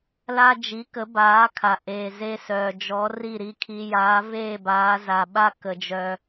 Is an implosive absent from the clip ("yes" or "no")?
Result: no